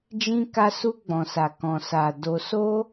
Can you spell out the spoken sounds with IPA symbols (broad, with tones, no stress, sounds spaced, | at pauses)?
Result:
d͡ʒ ĩ˧ k a˧ s u˧ ɡ͡b ɔ̃˨ s a˨ k ɔ̃˨ s a˨ d o˧ s o˦